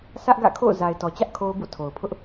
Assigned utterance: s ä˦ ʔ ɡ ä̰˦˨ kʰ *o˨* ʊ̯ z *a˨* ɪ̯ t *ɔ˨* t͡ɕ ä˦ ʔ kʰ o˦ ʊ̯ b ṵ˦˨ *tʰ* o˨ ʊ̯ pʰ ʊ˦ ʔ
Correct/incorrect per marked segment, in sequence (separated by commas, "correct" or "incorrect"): incorrect, correct, correct, correct